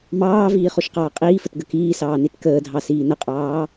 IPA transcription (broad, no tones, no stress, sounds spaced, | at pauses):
m ɑː v iː χ o ʃ q ɑː qʼ iː f ə t ɡ ə k iː s ɑː n i t k əː dʱ ɑ s iː n ə qʼ ɑː